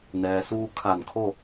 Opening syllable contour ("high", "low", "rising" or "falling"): low